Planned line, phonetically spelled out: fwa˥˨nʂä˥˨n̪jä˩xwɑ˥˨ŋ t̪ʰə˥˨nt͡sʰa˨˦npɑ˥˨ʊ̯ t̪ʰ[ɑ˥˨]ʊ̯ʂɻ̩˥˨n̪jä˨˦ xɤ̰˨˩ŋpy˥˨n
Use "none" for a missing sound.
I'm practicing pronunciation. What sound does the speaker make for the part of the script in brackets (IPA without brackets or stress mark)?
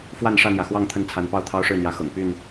ɑ˦